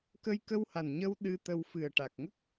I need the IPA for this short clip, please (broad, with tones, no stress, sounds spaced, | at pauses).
k ə˧ j k ə˧ w h a˨˩ n ɲ ə˧ w ɗ ɨ˧ t̪ ə˧ w f ɨ˨˩ ə̯ ʈ a˨˩ k̚ ŋ ə˦˥ k̚